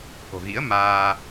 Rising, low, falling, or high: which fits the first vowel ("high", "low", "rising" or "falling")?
low